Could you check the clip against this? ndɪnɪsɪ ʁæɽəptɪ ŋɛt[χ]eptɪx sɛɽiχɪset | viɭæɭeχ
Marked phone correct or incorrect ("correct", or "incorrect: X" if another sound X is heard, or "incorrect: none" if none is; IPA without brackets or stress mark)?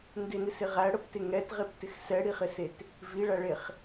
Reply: incorrect: ʁ